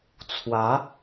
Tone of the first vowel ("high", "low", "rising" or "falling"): rising